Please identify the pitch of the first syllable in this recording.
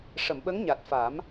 low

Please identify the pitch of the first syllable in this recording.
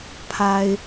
low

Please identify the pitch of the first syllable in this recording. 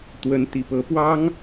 rising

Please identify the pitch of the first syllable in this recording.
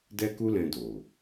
high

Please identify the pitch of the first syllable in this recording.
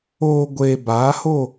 low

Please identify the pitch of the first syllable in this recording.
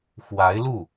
rising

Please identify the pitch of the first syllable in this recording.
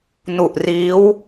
low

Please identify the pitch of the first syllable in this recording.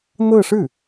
falling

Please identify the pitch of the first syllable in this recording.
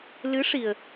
rising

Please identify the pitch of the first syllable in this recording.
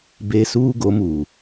high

